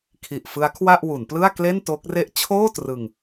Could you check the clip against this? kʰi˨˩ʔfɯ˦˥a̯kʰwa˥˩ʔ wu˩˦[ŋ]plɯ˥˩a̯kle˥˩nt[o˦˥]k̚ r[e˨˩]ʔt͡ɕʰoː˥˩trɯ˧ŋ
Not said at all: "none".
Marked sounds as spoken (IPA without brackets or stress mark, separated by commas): n, o˦˥, e˦˥